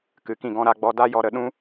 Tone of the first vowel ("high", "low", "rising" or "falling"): rising